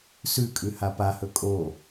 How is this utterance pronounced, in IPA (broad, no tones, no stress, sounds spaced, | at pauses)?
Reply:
s ʉ kʼ ʉ h a p a h ɵ kʼ o